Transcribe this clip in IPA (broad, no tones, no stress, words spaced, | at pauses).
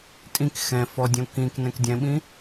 tʼĩk xɛ̃ fɔdʲõ kĩknɛ̃k dʲɛ̃ɓĩ